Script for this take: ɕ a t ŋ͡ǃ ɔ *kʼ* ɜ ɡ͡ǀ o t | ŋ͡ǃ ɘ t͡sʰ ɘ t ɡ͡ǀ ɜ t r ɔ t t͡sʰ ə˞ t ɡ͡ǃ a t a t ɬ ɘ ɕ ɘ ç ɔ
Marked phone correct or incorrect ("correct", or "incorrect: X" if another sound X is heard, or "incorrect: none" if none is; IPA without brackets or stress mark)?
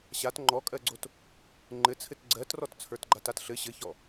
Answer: correct